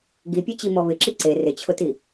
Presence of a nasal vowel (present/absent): absent